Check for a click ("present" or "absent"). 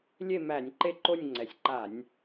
present